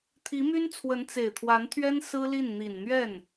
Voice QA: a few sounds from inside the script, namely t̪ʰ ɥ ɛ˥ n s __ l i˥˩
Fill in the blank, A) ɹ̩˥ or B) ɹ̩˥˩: A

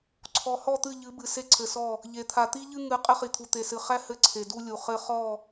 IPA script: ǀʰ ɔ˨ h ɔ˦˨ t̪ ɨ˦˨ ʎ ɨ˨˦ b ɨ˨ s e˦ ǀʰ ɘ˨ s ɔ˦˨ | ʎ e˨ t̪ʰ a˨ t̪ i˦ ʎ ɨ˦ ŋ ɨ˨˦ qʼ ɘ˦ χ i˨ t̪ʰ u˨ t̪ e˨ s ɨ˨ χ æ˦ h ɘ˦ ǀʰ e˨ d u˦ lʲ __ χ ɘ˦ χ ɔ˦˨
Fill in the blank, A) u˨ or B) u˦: A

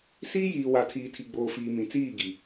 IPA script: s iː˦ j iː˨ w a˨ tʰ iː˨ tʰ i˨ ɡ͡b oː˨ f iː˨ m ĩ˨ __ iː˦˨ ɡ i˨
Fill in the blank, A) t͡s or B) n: A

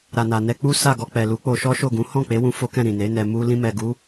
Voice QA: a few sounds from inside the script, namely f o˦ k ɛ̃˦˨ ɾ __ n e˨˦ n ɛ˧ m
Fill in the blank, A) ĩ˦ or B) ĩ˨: B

